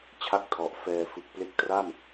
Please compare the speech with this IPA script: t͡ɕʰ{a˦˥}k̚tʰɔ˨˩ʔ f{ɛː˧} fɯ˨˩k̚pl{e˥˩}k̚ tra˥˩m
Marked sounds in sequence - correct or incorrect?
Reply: correct, correct, incorrect: e˦˥

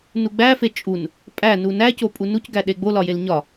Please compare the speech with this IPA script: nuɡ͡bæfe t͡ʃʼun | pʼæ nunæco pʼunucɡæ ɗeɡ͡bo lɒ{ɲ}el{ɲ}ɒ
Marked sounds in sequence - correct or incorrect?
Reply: incorrect: j, correct

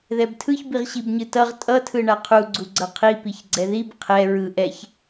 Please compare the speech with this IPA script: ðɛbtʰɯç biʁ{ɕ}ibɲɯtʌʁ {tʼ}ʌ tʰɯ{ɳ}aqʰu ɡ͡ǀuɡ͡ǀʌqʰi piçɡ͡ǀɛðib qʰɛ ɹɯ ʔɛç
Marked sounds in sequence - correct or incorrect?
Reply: correct, correct, correct

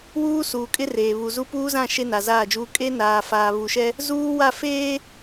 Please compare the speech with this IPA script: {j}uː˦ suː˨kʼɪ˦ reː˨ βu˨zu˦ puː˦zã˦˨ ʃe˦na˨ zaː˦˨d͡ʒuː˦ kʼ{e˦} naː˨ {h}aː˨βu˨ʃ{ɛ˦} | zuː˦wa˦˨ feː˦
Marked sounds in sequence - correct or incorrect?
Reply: incorrect: w, correct, incorrect: f, correct

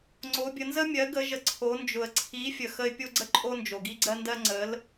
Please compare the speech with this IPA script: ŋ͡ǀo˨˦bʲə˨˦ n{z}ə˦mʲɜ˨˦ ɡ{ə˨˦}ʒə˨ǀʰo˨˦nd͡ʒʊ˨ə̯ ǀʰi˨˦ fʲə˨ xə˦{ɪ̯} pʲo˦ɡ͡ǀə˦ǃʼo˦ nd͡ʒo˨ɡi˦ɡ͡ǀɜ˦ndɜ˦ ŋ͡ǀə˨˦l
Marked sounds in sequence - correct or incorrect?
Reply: correct, correct, correct

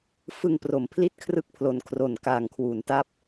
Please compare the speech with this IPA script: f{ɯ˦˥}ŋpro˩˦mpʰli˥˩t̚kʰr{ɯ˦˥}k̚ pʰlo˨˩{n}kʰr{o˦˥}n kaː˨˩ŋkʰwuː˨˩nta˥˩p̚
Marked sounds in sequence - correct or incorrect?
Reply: incorrect: ɯ˧, correct, correct, incorrect: o˨˩

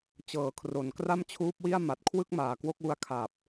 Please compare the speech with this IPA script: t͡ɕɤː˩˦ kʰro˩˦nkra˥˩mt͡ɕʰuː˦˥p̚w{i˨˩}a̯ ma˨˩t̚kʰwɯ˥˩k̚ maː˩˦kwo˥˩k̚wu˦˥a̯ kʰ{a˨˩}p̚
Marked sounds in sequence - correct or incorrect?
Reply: incorrect: i˥˩, correct

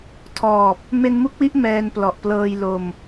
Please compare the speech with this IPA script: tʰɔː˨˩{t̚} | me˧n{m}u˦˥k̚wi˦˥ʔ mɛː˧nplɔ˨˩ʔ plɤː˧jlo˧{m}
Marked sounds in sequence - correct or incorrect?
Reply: incorrect: p̚, correct, correct

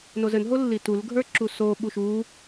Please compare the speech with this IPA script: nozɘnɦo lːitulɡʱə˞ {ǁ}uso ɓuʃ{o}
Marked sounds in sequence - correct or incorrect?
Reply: correct, incorrect: u

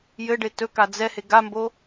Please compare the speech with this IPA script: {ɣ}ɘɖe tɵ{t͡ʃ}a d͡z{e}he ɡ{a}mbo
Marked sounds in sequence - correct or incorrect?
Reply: incorrect: j, incorrect: k, incorrect: ɛ, correct

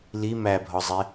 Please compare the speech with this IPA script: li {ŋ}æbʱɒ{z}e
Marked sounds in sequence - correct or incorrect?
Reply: incorrect: m, incorrect: zˤ

